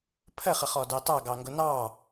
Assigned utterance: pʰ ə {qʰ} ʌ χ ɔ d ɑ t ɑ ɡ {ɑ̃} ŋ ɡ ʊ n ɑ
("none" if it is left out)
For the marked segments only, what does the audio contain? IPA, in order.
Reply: χ, ɑ

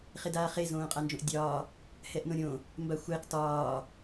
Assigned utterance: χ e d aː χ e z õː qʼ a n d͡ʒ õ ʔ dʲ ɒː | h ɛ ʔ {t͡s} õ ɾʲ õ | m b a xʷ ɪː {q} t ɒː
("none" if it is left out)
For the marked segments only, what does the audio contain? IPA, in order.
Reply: n, q

